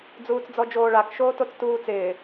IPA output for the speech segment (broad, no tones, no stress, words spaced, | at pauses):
d͡zuːt͡sd͡zɔd͡ʒoːɭak ʃoːtot͡stuːt͡sɪː